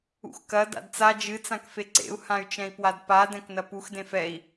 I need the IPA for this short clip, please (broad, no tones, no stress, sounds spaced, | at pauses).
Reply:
ṵ x k ɐ d a̰ d t͡s a d͡ʒ ɨ t͡s ã k f e ǀ ḛ u̯ h ã y̯ t͡ʃ ɛ̃ i̯ p w a d p a d ɛ̃ k n ɐ p u x d ẽ f ɛ i̯